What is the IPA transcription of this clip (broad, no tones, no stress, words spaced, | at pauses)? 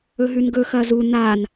ɵɦʉnɡɵ xɐzu n̪an